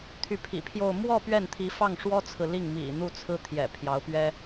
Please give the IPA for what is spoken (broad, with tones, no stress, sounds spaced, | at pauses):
t̪ʰ y˧˥ pʰ ḭ˨˩ pʰ j o˥˧ ʊ̯ m w ɔ˥˧ p ɥ ɛ˥˩ n t̪ʰ i˧˥ f ɑ˥˩ ŋ ʂ w ɔ˥ t͡sʰ ɹ̩˨ l i˥˩ ŋ m ḭ˨˩ n̪ u˥˩ t͡sʰ ɹ̩˥ t̪ʰ j ɛ̰˨˩ pʰ j ɑ˧˥ ʊ̯ p ɥ ɛ˥